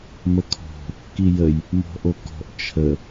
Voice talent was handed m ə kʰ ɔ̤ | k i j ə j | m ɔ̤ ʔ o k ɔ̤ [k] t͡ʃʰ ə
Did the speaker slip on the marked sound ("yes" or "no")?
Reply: yes